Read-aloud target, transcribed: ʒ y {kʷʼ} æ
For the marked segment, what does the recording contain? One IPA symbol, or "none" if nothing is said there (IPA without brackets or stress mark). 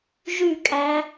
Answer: kʼ